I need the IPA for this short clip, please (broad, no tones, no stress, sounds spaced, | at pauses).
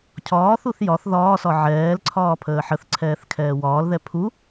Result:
cʰ ɒː θ u θ j ɒ θ ð ɒː s ɒ ʕ ɛː l ǀʰ ɒː pʰ əː ħ ə θ ǀʰ ɛː θ kʰ ɛː w ɒː l ð ɛ pʰ u